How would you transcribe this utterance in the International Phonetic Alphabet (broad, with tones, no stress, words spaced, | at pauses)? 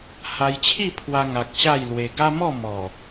ha˧jt͡ɕʰi˥˧pʰwa˧ ŋa˨k̚ ɕa˥˧jlwe˧ ɡa˦mɔ˥˧ mɔ˨˩